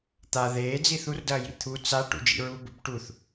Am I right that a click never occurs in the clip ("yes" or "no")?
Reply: yes